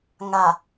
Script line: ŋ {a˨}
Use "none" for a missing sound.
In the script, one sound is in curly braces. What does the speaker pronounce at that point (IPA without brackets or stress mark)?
a˨